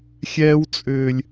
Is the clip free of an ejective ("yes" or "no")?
no